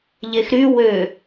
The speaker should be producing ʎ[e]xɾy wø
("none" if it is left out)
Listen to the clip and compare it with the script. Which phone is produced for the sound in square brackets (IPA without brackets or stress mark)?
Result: e